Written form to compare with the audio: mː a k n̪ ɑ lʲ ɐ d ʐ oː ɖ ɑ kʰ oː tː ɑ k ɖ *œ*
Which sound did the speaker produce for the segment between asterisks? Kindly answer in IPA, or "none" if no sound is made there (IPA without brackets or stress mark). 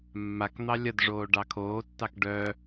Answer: œ